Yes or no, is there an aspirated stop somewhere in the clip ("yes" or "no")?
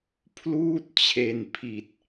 yes